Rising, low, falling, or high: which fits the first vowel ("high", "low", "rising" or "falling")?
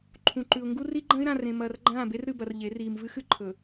low